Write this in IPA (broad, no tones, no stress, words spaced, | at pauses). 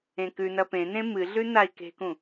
ẽkʉnɐ pẽnẽ mɨɮʉ nai̯ke̤kũ